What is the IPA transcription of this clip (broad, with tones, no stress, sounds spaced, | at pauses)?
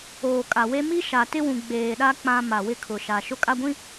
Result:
oː˨ kʼ a˨ w e˦ m i˦ ʃ a˨ t ɪ˦ w ũ˨ ɡ͡b eː˨ ɗ a˦ k͡p ã˦ m a˨ w ɪ˦ kʰ ʊ˨ ʃ a˨ ʃ ʊ˦ kʼ a˦ ɡʷ ĩ˦